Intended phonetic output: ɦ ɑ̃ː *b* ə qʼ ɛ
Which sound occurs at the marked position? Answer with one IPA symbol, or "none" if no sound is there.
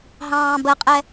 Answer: b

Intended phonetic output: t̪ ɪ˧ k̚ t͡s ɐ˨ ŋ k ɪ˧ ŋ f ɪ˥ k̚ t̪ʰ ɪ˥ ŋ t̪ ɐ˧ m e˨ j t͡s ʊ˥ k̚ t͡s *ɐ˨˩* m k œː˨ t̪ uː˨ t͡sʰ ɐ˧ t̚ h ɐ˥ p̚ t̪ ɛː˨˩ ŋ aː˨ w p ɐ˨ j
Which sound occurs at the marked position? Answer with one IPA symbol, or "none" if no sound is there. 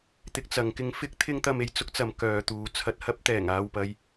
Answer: ɐ˨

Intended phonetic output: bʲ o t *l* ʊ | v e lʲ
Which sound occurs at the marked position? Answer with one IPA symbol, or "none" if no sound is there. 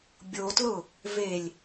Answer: l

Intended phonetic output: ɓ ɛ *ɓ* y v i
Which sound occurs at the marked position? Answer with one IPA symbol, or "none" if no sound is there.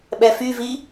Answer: f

